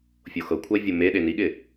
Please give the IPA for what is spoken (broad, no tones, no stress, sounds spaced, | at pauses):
fʲ o x ɤ kʷʰ ʌ e̯ vʲ o m e ɗ e n i ɠ ɪ